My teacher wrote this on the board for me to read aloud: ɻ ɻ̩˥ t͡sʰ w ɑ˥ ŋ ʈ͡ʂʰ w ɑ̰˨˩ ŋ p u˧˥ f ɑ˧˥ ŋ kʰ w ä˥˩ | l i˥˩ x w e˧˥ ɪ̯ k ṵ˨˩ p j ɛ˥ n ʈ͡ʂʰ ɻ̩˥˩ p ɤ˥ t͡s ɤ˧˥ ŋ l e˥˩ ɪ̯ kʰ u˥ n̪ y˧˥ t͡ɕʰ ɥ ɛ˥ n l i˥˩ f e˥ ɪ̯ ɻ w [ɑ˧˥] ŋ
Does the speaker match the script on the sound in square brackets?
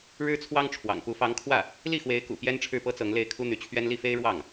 no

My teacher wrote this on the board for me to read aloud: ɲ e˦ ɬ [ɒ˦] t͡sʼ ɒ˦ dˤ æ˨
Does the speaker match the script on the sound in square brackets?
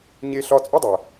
yes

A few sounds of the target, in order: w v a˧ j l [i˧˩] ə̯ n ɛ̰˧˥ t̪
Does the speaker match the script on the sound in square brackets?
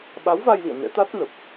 no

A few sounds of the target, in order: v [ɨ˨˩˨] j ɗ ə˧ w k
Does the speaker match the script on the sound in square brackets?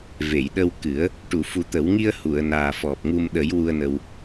no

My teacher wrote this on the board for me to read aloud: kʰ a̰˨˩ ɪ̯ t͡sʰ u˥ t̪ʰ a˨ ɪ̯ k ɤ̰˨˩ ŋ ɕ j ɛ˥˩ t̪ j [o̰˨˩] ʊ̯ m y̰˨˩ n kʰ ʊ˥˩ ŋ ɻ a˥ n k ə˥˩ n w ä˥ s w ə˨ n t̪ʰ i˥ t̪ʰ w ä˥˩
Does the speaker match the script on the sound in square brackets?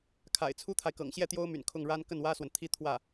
no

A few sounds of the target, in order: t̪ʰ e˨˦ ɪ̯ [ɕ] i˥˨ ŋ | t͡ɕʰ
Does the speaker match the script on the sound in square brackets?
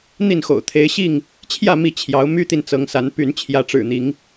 yes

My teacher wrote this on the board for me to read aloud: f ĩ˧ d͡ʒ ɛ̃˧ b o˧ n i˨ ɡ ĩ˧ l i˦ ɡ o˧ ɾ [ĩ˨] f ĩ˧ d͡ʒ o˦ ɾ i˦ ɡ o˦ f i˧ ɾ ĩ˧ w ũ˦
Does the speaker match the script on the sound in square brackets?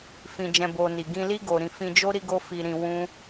no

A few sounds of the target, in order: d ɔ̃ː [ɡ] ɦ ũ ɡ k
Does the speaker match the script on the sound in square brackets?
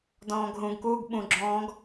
yes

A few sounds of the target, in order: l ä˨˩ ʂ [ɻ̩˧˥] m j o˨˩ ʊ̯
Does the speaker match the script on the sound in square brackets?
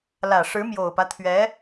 yes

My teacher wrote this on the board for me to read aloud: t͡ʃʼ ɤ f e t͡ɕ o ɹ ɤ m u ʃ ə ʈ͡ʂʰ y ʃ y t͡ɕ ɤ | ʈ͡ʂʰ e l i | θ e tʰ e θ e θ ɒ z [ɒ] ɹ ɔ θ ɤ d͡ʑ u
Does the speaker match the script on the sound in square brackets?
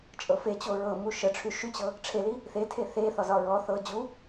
yes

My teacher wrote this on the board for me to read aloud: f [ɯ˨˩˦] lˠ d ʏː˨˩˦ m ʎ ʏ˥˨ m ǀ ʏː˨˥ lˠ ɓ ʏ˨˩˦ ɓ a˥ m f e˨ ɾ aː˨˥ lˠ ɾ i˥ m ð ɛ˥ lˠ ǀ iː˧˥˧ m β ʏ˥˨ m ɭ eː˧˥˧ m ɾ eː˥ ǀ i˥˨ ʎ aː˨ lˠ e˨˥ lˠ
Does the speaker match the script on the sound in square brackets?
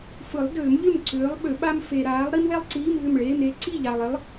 yes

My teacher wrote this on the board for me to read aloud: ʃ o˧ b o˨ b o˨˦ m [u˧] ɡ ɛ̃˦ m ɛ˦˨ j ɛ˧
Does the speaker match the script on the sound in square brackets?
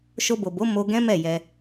no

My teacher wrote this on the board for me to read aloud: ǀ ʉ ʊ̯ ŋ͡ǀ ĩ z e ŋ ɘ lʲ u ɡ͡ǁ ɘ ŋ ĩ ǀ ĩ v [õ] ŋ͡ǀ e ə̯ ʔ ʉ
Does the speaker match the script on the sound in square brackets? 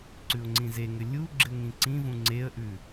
no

